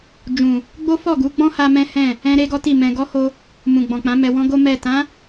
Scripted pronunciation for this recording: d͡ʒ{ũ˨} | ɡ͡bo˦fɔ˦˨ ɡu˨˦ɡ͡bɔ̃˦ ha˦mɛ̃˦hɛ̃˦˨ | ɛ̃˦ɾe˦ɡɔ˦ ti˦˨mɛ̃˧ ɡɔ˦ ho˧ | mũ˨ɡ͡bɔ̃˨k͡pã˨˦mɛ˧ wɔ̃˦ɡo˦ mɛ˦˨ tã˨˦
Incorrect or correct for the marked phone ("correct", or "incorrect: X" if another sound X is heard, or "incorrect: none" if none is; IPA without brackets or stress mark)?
correct